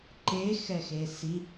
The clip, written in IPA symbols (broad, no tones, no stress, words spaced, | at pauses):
ǃexɛxe si